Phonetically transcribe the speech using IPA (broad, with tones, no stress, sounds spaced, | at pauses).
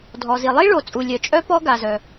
dʱ ɔ˩ z i˩ lˠ i˥ ɭ o˩ t͡sʼ u˩ lʲ œ˩ t͡ʃʼ œ˥ p ɔ˥ ɡ a˩ z œ˩